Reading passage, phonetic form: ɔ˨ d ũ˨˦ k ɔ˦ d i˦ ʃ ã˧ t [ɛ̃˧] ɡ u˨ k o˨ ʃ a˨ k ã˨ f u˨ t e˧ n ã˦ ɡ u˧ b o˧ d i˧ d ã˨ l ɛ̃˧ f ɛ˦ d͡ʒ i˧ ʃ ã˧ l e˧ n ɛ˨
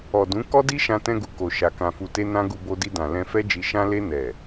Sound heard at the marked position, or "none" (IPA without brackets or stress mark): ɛ̃˧